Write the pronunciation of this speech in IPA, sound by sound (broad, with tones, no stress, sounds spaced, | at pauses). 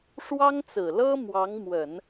ʂ w ɑ˥ ŋ t͡s ɹ̩˨˩ l ɤ˥ m w ɑ˧˥ ŋ m w ə˨˩˦ n